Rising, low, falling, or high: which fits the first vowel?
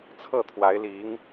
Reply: falling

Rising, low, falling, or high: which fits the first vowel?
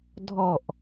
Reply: falling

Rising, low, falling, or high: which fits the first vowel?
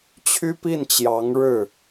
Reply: high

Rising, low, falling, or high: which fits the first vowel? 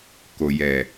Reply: low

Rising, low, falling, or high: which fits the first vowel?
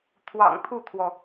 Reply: low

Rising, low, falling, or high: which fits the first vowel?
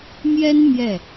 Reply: high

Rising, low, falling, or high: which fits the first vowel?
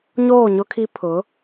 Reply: falling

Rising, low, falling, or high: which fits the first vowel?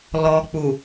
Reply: low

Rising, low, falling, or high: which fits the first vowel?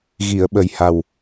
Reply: low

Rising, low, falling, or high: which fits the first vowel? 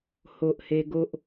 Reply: low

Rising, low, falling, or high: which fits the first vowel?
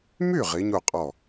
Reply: falling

